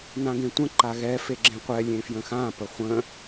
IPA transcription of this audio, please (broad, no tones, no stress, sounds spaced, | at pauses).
n ã ɡ ẽ tʷ ə̃ ǃ a ɣ ɛ f e ɡ͡ǁ ẽ qʷ ɛ lʲ ẽ f j ə̃ x ã p ə χʷ ə̃